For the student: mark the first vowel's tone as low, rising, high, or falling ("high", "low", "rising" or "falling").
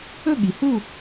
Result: falling